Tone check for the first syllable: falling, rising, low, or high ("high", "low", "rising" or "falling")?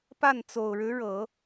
falling